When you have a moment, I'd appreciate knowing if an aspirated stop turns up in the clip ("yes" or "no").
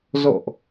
no